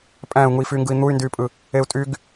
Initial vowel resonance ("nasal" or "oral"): nasal